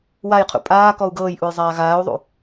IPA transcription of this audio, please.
w a j qʰ ṵ pʼ aː k ɔ u̯ ɡ ɤː j ʔ u j zˤ aː ɣ aː u̯ ðˤ ṵ

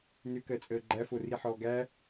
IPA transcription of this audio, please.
n ʏ k ɜ t͡sʼ əː ɡ͡ǃ æ f o r i ħ ɔː ɡ æ

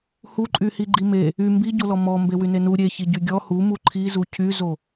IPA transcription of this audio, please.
h u ǃʼ y h i ɡ͡ǃ i m e | y m b i ɟ o l ɔ m ɔ m b e w y n e n u ɾʲ e ç i ɟ y ɡʲ ɔ h u m u ǃʰ i z u cʰ y z o

